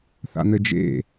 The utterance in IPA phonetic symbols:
θ a̰ n̪ ɘ d͡ʒ ḛ

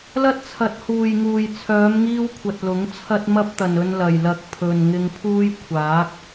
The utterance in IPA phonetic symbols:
l ɐ˥ t̚ t͡sʰ ɐ˨˥ t̚ h uː˨ j ŋ uː˨ j t͡sʰ œː˨˧ m ŋ iː˧ w kʷʰ ɐ˨ t̚ l ʊ˨˥ ŋ t͡sʰ ɐ˥ t̚ m ɐ˥ p̚ t̪ ɐ˨ n ɵ˧ n l ɐ˨ j l ɐ˧ k̚ pʰ ɵ˨ n ŋ ɪ˧ ŋ pʰ uː˥ j kʷʰ aː˨˥ k̚

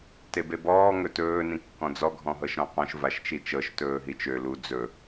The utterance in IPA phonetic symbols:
t e b e b ɔː ŋ ɵ t ɵː n ĩ kː ɔ̃ d͡z ɔ ɡʱ ɔ̃ ɦ ɤ ʃ ɾ ɔ̃ q ɔ̃ ʃ v a ʃ t͡ʃ i t͡ʃ ɤ ʃ t ɵː ɦ i t͡ʃ ø l u d͡z ɵ

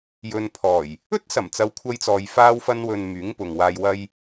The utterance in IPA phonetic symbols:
j ɵ˨ n pʰ ɔː˨˩ j | ɵ˥ t̚ s ɐ˨˩ m t͡s ɐ˨˧ w kʷʰ ɐ˧ j t͡s ɔː˨ j f aː˧ w f ɐ˧ n w ɵ˨ n m yː˨˥ ŋ p ʊ˨ ŋ w aː˧ j w ɐ˧ j

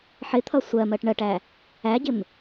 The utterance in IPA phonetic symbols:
ħ ɪ t̪ʰ ʌ sʷ ɜ m ɜ ʈ ɳ ɜ ʈ æ | æ ɟ ɪ m

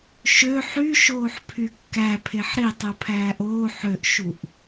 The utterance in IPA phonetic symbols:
ʃ ø ħ y ʃ oː ħ pʰ y kː æ pʰ e ħ ɾ i tˤ u pʰ æː ʔ oː ħ ø ʔ ʃ u ʔ

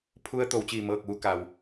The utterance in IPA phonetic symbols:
pʰ u˧ ə̯ t̪ o˩˧ w t͡ɕ iː˧˩ m ɤː˧˩ k̚ ʋ u˩˧ k a˩ w

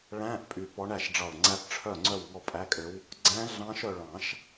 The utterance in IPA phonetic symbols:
ɭ æ̃˧˥˧ ʔ pʼ y˧˩ p ɔ˧˥ ɳ æ˥˩ ʃ ɖ͡ʐ ɑ˧˩ ɭ ŋ͡ǀ æ˧˥ p ʈ͡ʂʰ œ˥˩ ŋ͡ǀ œ˥˩ w ŋ ɔ˥˩ pʼ æ˧˥˧ kʼ ø˧˥ w | ɡ͡ǀ æ̃˧˥ ɮ ɑ̃˧˥ ʃ œ˥˩ ɭ ɑ̃˨˩˦ ʃ

